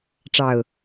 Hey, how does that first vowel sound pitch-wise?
low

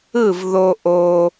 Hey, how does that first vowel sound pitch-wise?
falling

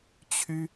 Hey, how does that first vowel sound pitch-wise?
high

